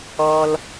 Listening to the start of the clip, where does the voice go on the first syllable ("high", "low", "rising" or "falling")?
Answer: low